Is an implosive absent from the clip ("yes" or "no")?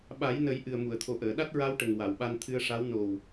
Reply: no